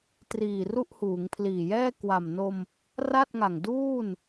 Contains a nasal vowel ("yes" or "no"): no